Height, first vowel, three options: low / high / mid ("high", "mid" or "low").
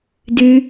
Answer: high